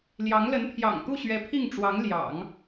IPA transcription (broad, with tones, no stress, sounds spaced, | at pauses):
l j ɑ˧˥ ŋ l ə˧˥ n pʰ j ɑ̰˨˩ ŋ t̪ u˥˩ ɕ ɥ ɛ˧˥ pʰ i˥˩ ŋ ʈ͡ʂ w ɑ˧˥ ŋ l j ɑ̰˨˩˦ ŋ